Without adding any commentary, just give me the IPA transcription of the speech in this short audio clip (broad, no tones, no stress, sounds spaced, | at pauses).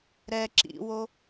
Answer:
ɾ ɛ ǁ ḭ w o